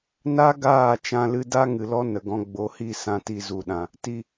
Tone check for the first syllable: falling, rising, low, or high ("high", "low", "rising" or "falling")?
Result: high